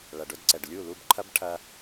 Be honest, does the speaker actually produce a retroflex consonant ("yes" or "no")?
yes